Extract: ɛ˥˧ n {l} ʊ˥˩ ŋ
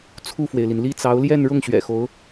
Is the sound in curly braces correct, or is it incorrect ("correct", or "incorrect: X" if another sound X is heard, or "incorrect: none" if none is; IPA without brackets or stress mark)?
incorrect: ɻ